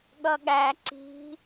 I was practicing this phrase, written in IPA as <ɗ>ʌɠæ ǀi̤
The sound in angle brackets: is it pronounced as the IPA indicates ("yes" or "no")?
no